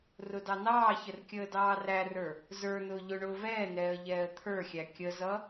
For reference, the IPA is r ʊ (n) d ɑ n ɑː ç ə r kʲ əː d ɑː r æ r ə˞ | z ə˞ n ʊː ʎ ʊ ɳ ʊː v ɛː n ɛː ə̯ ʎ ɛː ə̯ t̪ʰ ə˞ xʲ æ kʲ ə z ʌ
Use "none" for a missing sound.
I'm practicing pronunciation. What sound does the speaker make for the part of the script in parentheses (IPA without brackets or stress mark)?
none